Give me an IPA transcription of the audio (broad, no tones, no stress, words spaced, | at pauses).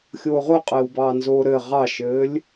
xʲoːʁoqʼɘːwbɑː nzoːɾɘ ʁɑʃɘːlʲ